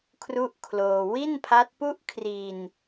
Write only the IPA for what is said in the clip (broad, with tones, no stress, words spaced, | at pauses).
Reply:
kʰru˥˩ʔ kʰloː˧ wi˥˩npʰa˦˥t̚pu˥˩ʔ kʰri˧n